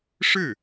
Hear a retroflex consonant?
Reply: yes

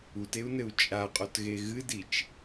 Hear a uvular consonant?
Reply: yes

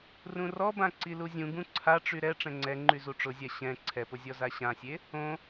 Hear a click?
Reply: yes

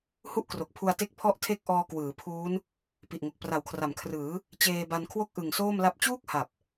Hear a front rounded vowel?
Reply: no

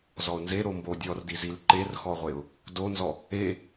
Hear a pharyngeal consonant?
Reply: no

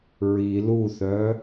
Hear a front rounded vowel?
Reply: yes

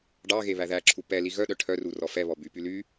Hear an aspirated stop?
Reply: yes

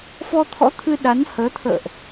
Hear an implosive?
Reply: yes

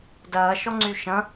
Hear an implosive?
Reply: no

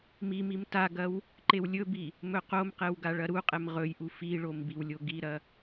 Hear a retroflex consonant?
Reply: yes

